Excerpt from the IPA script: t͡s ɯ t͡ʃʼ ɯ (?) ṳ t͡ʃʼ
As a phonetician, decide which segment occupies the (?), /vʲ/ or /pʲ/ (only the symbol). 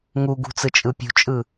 pʲ